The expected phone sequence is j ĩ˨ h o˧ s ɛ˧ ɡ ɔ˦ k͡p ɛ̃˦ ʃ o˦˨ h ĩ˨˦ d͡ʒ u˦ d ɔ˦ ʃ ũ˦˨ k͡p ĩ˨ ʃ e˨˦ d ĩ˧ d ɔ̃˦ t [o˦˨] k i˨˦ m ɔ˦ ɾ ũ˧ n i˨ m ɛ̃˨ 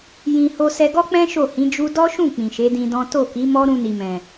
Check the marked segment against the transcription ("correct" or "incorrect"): correct